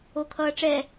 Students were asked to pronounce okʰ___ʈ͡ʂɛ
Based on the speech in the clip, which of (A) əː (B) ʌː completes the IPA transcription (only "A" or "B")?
B